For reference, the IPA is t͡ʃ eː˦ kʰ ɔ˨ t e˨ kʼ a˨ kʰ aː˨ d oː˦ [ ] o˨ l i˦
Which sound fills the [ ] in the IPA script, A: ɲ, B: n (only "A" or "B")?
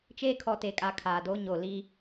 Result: A